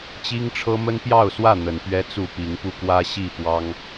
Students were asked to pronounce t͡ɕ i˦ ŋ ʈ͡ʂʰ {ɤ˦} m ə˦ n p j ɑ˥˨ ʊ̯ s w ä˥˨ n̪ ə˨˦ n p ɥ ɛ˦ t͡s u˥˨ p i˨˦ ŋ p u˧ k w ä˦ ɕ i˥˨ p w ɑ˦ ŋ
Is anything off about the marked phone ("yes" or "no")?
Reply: no